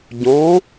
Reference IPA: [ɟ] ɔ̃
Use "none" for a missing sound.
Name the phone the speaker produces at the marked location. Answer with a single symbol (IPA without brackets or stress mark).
ɟ